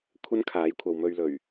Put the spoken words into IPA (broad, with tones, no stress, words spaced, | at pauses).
kʷʰɐ˥nkʰaː˨˥j kʷʰɐ˨wmɵ˧ɥlɵ˨˩ɥ